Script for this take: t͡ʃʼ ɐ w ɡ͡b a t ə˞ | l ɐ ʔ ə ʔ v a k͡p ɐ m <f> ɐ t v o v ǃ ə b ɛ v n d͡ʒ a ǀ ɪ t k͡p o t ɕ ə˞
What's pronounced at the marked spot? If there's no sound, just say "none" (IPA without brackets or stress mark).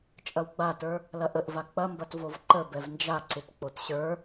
b